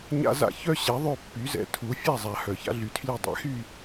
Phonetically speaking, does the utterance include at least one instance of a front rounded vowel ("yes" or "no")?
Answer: yes